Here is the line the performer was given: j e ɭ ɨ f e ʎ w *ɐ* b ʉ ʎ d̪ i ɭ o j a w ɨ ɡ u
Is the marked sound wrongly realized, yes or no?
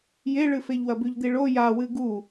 no